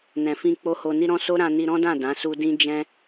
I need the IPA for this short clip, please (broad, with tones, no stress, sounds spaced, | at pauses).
n ɛ̃˨ f ĩ˧ k͡p o˦ h o˧ n i˦ ɾ ɔ̃˦ s o˦ ɾ ã˧ n i˧ ɾ ɔ̃˦ d ã˦˨ d ã˨˦ s u˦ d ĩ˦ d͡ʒ ɛ̃˦